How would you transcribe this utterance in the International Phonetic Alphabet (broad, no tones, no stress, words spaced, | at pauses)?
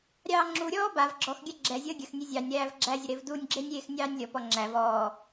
ɾʲɑːŋ͡ǁuɾʲɔː bav ɡ͡ǁɔx ɡʲaɡ͡ǁɛzʲəː ɡʲəxnʲe zʲɑnʲ ɾæːvɡ͡ǁæzʲə ɾevdunʲɡ͡ǁenʲ ɾʲeːxnʲɑːnʲlʲɔpɔ ŋ͡ǁæv ɔː